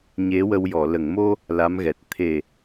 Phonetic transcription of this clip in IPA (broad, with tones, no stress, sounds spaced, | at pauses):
ɲ e˧˥ w ə˧ w j ɔ˨˩˨ l ə˨˩˨ ŋ m o˧ | l a˧˥ m ɣ ɛ˨˩ t̚ t̪ʰ e˨˩